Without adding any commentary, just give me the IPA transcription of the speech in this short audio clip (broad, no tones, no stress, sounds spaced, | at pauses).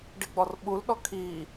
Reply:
ɖ i ɡ͡b ɔ r ɓ u l ɗ ɔ kʰ iː